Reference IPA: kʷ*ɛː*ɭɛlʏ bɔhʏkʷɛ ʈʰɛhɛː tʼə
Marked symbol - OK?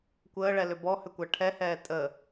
no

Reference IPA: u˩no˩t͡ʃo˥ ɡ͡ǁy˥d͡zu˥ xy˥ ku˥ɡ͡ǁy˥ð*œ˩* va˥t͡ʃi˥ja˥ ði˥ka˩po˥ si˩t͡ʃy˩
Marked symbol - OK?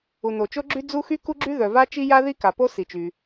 yes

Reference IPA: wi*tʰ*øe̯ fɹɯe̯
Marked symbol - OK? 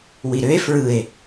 no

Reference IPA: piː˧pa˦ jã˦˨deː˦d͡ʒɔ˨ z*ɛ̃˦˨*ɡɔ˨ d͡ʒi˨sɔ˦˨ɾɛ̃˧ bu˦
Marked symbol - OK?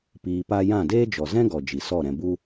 no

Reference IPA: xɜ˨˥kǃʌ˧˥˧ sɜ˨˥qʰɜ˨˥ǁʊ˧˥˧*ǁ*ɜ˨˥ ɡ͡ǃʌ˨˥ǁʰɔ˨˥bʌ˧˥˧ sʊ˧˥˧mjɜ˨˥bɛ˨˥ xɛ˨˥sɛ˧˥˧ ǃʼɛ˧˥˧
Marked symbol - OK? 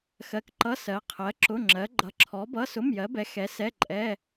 no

